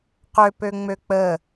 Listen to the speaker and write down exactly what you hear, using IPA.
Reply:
qøpøŋ͡mø k͡pə

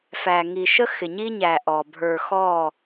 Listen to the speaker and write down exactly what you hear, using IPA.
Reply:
fæ˨ ŋi˨ʃə˦ xɪ˨ɲi˦ɲæ˨ ʔɔ˨ bʱə˞˨xɔ˦˨

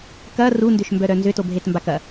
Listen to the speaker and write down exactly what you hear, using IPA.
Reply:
kɐ rundʏʃ mbœɾœnzʏtob ɦetmbakɐ

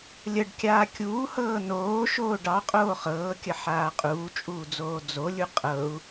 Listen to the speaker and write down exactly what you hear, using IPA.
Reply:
lʲəɖkʲaː kʲuːhɤː noːʃoː ɖɑqʼoː χɤːkʲəħaː qʼuːt͡ʃʼuːd͡zoː d͡zolʲu qʼɤu̯

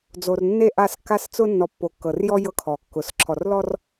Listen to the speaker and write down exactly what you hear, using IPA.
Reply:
d͡zo˨rnːe˦˨ ʔa˦˨skːa˦st͡sʊ˦ nːɔ˨ pːo˨kːɤ˨rjɔ˦ jɤ˦kʰɔ˨kːʊ˨s ǁʰɔ˨r lɔ˦r

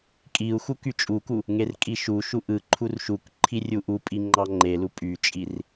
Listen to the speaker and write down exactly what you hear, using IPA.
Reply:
kʼiu̯ xukyt͡ʃʼuku | ŋerkʼiʃuʃu ʔɯ ǃʰurʃukǃʰi rʲuʔupʼi ŋ͡ǃɑŋ͡ǃelu pʼyt͡ʃʼir

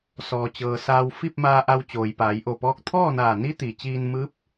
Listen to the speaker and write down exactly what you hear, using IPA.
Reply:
sɔː˩t͡ɕɤː˩saː˧w fi˥˨p̚maː˧ʔa˧w t͡ɕoː˩jpaː˩˧jʔo˧˩pɔː˧˥k̚ t̪ʰɔː˥˨naː˧˩ni˧˥ t̪i˩t͡ɕiː˧nmɯː˧˥p̚

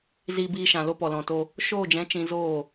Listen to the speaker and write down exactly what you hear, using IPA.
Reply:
ziː˧biː˧ʃã˨ lo˧pɔ˨lɔ̃˨to˧ | ʃoː˦˨d͡ʒɛ̃˨˦ t͡ʃĩ˧zoː˦˨

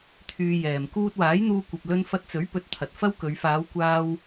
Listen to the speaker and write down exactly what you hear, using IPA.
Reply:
t̪ʰyː˧jɛː˨m kuː˧t̚waː˨˥jn̪uː˧kʷɐ˨p̚ lɵ˧nfɐ˧t̚t͡sɵ˨˥ɥ pɵ˧t̚t̪ʰɐ˨t̚fɐ˥wkɵ˨˧ɥ faː˨˧wkʷaː˧w

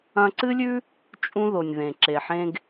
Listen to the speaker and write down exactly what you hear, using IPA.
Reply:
ɐ̃˧ǀɨ˦lʲʉ˦ | t͡ʃʼũ˧ðo˨nʲ ðẽ˨ ǁe˨ħẽ˧ɡ

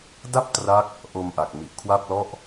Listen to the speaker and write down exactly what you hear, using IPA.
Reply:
da˥˩p̚tra˦˥k̚ | ʔo˧mʔa˨˩k̚ mi˨˩ʔkʰwa˥˩p̚lɔ˥˩ʔ

